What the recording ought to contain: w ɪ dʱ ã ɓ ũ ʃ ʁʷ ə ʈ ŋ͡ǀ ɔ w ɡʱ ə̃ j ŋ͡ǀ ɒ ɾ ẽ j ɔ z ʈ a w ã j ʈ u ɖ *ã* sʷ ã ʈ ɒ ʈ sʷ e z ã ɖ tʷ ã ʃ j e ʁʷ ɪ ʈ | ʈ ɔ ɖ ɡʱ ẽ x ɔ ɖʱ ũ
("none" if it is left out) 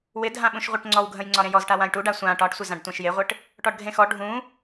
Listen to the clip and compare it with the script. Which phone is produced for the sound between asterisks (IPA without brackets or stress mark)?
a